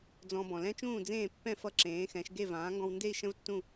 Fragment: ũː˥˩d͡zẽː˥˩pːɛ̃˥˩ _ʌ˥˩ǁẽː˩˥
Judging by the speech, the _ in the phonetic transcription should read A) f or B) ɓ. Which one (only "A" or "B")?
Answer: A